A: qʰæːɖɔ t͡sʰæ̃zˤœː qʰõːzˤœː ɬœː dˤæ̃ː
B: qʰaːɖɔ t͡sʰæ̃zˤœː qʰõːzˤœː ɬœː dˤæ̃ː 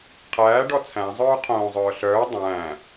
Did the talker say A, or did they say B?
A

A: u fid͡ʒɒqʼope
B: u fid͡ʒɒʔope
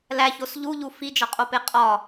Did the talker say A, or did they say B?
A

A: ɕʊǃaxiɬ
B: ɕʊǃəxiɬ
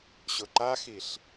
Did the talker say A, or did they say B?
A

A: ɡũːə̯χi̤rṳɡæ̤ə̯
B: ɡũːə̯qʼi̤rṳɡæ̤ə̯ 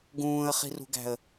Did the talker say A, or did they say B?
A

